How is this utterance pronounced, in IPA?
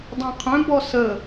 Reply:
dˤ ĩ qʰ œ̃ b ɔ s ə

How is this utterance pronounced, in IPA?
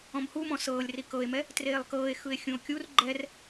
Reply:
ɔ̃ m h u m ɔ̃ s ɤː lʲ r i k ɤ e̯ m ɛ | t r eː lˠ k ɤː e̯ x ɯ e̯ xʲ ũ o̯ kʲ u r ɡ͡ǃ ɛ r

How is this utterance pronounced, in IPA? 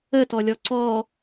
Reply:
ə t ɔ lʲ ɔ ǀ ɔ

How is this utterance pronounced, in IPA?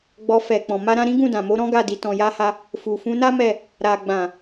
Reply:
ɡ͡b ɔ˧ f ɛ˨ k͡p ɔ̃˨ m a˧ ɾ ã˧ ɾ ĩ˦ ɡ ũ˦˨ d ã˨ m o˨˦ ɾ ɔ̃˦ ɡ a˦˨ d i˨˦ t ɔ̃˧ j a˦ h a˧ | f u˨ f ũ˨˦ n a˦ m ɛ˦˨ | ɾ a˨ ɡ͡b ã˨

